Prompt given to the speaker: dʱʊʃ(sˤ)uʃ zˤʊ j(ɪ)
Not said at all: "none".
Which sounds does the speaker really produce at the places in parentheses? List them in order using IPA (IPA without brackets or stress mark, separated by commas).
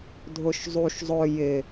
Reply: zˤ, ɪ